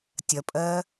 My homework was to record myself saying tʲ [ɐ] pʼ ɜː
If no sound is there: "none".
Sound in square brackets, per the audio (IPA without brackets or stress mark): ɐ